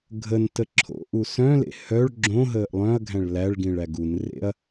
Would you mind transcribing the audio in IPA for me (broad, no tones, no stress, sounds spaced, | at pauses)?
ɡʱ ə n t ə ǁʰ o̰ ʔ u s œ̃ l ḛ h œ ɭ ɡ͡ǁ õ ɦ əː ʔ lˠ œ̃ ɐ̯ ɡʱ æ̃ ɭ l æ ɭ ɡ ĩ ɭ æ ɡ u n r ḛ ɐ̯